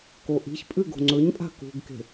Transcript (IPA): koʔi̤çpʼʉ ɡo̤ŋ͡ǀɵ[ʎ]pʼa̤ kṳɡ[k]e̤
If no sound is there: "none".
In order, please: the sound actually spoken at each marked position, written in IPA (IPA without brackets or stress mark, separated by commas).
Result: ɲ, k